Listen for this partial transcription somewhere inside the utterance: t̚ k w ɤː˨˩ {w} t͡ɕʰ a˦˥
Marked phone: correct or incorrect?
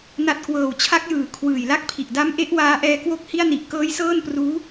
correct